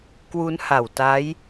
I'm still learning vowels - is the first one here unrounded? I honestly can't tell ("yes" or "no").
no